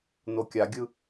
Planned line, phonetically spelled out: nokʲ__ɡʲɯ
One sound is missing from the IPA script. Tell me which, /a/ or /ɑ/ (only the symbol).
a